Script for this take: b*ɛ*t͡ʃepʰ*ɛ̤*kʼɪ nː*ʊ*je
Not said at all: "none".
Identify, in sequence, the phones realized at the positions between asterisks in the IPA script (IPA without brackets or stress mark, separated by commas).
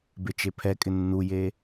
e, ɛ, u